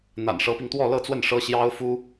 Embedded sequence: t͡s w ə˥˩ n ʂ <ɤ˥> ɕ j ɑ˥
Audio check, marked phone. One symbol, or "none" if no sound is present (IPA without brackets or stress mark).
ɤ˥